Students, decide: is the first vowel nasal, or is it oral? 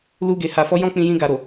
oral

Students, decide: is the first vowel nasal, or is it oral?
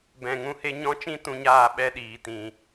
nasal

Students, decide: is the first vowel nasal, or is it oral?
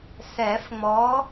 oral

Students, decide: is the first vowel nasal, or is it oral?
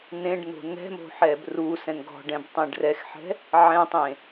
nasal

